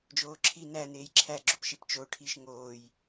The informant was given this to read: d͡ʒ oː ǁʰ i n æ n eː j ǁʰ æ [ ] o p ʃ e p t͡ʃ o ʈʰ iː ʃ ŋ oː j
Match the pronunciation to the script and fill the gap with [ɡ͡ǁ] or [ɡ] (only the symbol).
ɡ͡ǁ